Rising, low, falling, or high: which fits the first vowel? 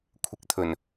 low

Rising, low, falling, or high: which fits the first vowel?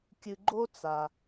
low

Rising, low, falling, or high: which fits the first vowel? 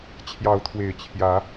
rising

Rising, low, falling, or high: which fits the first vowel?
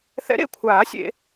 rising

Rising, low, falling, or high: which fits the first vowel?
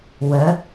rising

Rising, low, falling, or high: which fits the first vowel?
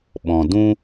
low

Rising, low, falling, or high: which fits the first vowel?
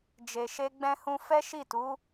low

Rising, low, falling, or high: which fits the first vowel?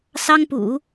high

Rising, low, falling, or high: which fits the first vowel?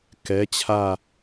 rising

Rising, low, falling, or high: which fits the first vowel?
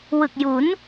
low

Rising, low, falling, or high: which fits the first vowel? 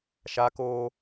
high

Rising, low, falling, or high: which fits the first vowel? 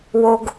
low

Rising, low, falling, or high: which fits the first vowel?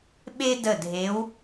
high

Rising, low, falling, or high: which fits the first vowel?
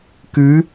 rising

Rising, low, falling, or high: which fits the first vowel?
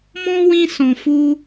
high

